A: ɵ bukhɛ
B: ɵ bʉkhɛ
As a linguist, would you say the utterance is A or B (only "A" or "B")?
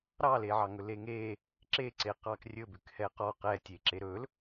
B